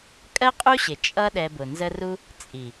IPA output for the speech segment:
kʼ ɜ˦ qʼ u˦ ɕ ɪ˨ t͡ʃʼ ʌ˦ ɗ ɛ˧ b ʊ˨ n z ə˦ r u˦ | t͡sʼ i˨

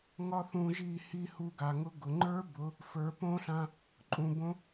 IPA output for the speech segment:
ŋ ɒ˦ θ ũ˧ ʒ i˦˨ h i˦˨ h u˧ ɡ a˨ ŋ ʊ˧ ɡ ʊ˨ ŋ͡ǃ ə˞˦ b ʊ˨˦ | f ə˞˨˦ p õ˦ ɬ ã˧ | ǃʼ ũ˨ b õ˧

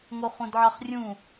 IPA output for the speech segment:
ŋ o χ ũ d ʕ ɑ χ rʲ ũ

